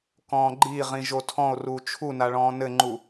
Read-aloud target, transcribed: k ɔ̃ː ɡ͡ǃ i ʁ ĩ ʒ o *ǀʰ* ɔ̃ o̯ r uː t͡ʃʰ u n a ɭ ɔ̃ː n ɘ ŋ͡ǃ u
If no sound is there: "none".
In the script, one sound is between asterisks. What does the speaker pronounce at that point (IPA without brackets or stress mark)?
tʰ